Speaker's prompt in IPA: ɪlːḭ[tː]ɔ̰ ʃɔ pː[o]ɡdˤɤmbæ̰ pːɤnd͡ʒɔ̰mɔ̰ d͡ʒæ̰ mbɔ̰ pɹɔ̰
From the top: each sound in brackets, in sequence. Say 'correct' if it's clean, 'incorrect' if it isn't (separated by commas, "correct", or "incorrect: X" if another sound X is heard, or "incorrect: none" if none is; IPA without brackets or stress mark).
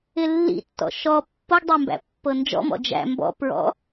correct, incorrect: ɤ